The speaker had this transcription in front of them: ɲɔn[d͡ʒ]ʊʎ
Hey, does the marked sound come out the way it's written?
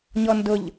no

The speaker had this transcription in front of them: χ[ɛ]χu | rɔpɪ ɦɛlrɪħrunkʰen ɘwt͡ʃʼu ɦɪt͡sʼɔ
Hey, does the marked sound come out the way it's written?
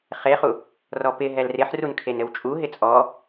no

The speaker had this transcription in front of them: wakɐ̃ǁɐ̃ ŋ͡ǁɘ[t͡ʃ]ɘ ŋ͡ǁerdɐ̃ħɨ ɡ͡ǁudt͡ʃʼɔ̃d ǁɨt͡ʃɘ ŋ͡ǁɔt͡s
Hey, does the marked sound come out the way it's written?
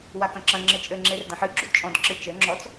no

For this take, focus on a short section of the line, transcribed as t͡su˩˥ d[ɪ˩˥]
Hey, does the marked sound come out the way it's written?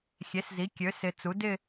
no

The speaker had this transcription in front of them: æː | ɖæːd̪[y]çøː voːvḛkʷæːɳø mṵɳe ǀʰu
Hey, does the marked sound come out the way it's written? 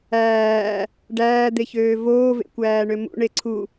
no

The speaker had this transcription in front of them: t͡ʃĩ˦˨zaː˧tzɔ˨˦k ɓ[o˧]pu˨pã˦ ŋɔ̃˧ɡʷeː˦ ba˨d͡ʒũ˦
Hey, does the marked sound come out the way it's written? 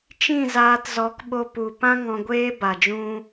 yes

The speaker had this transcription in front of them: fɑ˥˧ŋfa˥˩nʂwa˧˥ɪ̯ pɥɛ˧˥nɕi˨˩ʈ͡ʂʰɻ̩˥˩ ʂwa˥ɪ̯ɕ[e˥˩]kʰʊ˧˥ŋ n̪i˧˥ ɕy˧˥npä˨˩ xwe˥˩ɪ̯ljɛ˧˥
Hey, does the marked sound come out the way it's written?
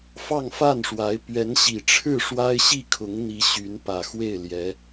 no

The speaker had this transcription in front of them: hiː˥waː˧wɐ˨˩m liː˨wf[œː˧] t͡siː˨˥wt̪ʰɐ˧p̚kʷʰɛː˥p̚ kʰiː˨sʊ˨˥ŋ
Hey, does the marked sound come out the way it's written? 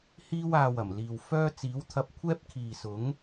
no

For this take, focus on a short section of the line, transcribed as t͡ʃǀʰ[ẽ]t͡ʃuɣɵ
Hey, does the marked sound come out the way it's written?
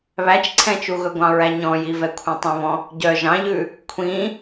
no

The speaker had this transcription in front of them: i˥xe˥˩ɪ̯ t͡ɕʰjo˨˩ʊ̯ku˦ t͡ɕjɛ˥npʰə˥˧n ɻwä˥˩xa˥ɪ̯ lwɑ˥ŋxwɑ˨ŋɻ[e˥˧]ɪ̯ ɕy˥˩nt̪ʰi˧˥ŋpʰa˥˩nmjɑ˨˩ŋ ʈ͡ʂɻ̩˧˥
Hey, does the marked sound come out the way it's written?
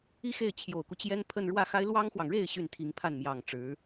yes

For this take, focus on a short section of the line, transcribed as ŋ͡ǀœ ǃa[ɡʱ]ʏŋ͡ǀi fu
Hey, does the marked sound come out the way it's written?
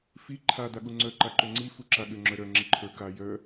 no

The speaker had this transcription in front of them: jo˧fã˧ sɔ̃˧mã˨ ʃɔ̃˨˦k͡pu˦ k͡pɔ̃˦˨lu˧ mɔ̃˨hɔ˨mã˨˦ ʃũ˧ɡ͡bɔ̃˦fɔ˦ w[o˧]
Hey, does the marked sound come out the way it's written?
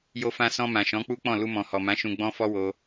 yes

